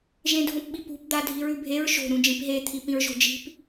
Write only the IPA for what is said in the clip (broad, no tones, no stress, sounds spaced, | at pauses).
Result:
ʒ ẽ dʱ õ p ɓ i p ṳ p d̪ a dʱ i ɹ ʉ bʱ e ɹ ʃ o̤ ɾ ũ d͡ʒ ĩ p ɦ e t̪ʰ i p ĩ ɹ ʒ o̤ d͡ʒ i̤ p